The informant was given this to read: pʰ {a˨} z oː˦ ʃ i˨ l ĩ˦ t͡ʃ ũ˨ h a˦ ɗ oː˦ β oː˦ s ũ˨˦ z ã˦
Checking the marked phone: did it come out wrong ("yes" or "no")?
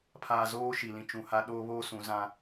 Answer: yes